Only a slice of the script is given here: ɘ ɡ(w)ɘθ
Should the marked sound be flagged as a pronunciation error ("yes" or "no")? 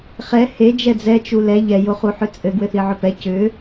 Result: no